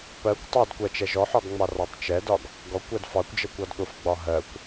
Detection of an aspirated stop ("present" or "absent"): absent